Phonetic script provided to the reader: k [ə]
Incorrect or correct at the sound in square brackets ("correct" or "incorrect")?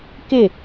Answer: incorrect